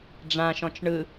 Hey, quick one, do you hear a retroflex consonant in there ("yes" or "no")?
yes